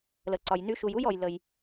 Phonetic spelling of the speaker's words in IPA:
l ə˨ ǀ ɒ˨ j n y˧ ʃ u˨ j u˦ j ɔ˨ j l ə˨ j

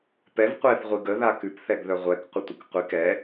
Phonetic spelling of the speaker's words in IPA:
p ɛ v qʷ ɛ θ ʁʷ i ɡ ə ð a k ʉ p θ ɛ ɡ ð œ ʁʷ ɛ k qʷ ə tʷ ə k qʷ i k ɛ

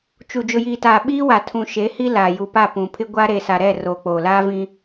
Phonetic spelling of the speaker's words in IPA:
t͡ʃ u˨ d͡ʒ ʊ˨ j iː˨ t aː˨ ɓ iː˦ w a˨ tʰ ũ˨ ʃ e˨˦ h i˦ l a˨ j u˨ p a˦˨ p ũ˨ pʰ ɪ˦ ɡʷ a˦ ɾ e˨ s a˨ ɾ ɛ˦˨ r oː˨ k͡p oː˨ l aː˦ v ĩ˦

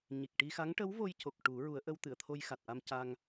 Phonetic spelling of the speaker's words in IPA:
ɲ i˨˩ k̚ ʈ i˧ x a˧˥ ŋ ʈ ə˧˥ w v o˧ j c o˨˩ k̚ ʈ u˨˩˦ ɹ u˨˩˦ ə̯ ʔ ə˧ w t̪ ɨ˨˩˨ ə̯ t̪ʰ o˧ j x a˨˩ t̚ ʔ a˧ m c a˧ ŋ

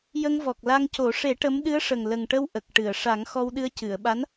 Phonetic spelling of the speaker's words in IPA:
j ə˧ ŋ v ɔ˨˩ k̚ l a˧ ŋ c o˨˩˦ ʂ e˨˩˦ ʈ ə˧˥ m ɗ ɨ˧˥ ə̯ ʂ ə˨˩ ŋ l ə˨˩ ŋ ʈ ə˧ w ʔ ə˨˩ k̚ ʈ ɨ˨˩˨ ə̯ ʂ a˨˩˦ ŋ x ɔ˧ w ɗ ɨ˧ ə̯ c ɨ˨˩˨ ə̯ ɓ a˧˥ n

